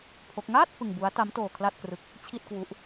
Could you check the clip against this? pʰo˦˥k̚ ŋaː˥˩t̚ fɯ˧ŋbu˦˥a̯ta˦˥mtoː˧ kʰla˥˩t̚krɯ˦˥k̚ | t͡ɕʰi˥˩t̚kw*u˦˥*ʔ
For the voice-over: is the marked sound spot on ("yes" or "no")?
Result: yes